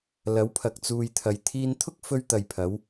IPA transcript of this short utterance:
lɐ˨˥wpʰɐ˨k̚ t͡suː˨jt̪ʰɐ˨j t̪ʰiː˧nt̪ʰʊ˥k̚fɵ˧ɥ t̪ɐ˨jpʰɐ˨˧w

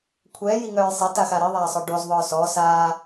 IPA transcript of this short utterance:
kʷʰɛːjiŋœːj sˤɐtaxa ɾiðˤaːsˤœ ɖozðˤœː sɔː saː

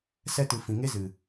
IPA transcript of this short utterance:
sɛ˧tɨ˨ fĩ˨ŋe˦zɨ˨

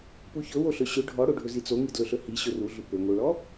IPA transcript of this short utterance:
puçɵwoɬɵ ɕɵ ɖʱɔɽoɖʱɵ zit͡soŋi dlɵɬɵhi ɕɵruɮu pɵŋoɭɔ

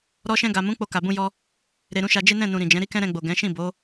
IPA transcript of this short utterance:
ɾɔ˧ʃɛ̃˧ɡa˨mũ˨˦ k͡po˧ka˨bũ˧jɔ˧ | ɾe˧ɾũ˧ʃa˧ d͡ʒe˦nɛ̃˦˨nũ˨ ɾĩ˨d͡ʒɛ̃˨˦ ɾi˦kɛ̃˦ɾɛ̃˧ɡ͡bo˨ ɡɛ̃˨˦ ʃĩ˦˨bo˨˦

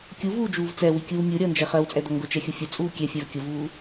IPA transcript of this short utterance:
kʲuvuːd͡ʒuːv t͡sɛwikʲuː mʲuɾʲʌːnd͡ʒɛ χɜwt͡sʼɛd̪ʌ ŋɡʊt͡ʃɛxʲʊ fʲʊt͡sʼuː kʲɛfʲæv kʲʊvuː

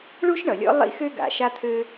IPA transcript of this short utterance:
ɭu˥ʃɳʌ˩lʲɔ̰˥ lˠḭ˥xø˥ɡa̰˩ ʃa˥t̪ʰø˥

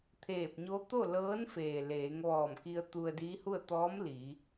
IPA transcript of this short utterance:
t̪ʰeː˧˩p̚ɲo˧˥ t̪o˥˨lɤː˧˥nfeː˩ leː˩˧ŋ ʋɔː˧˩mki˧ə̯ t̪u˧ə̯diː˧˥hu˥˨ə̯ t̪ɔː˧˥m li˩˧

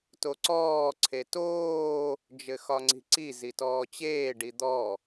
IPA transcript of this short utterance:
toǀɔː ǀʰetoː | d͡ʒɘxɒŋ͡ǀi̤ǀi zitɔːt͡ɕeː ɖid̪ɔ

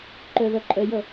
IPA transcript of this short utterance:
ǃœðʌǃʼœjʌ

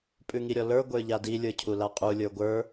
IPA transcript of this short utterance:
pʼʉŋiɾʲɔlə˞ ɡʷə˞ʎadi lʲə˞cʰulaqʼu lʲə˞ɡʷə˞

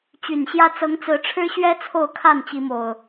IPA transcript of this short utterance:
t͡ɕy˨˩nɕjä˦ t͡sɤ˨˦ŋt͡sɹ̩˨˦ʈ͡ʂʰɻ̩˦ɕɥɛ˦ t͡sʰo˥˨ʊ̯kʰa˥˨nt͡ɕi˨˦mo˨˩ʊ̯

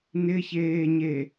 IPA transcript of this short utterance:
nɪçeːɲe

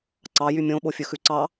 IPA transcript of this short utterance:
ǀɑjy mʲõɓofʲɵ xʉǀɑ

